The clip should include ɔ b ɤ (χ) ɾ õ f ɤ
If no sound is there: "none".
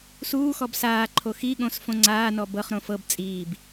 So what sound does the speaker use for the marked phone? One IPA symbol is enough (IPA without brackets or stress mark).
χ